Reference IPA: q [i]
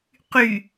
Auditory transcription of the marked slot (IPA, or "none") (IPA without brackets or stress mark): y